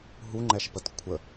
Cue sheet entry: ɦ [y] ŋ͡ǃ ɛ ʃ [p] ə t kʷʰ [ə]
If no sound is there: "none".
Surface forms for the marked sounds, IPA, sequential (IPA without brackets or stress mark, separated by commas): u, p, ə